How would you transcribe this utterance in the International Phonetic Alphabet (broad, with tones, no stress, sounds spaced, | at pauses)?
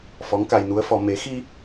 f ɔ˧˥ ŋ k a˧ j n u˧˥ ə̯ f ɔ˧ m e˨˩˦ x i˧